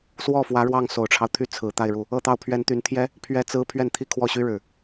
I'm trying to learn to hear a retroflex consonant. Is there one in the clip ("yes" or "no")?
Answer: yes